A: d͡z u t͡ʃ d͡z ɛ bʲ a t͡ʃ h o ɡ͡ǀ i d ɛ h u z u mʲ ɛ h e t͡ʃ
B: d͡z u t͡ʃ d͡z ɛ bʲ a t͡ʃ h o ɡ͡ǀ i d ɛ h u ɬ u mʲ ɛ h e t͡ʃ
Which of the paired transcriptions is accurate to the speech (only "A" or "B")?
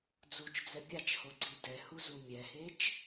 A